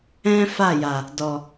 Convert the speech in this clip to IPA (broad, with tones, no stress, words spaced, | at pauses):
ɛ̃˦fa˦˨ja˨ | dɔ˨